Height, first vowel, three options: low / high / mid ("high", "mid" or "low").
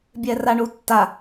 mid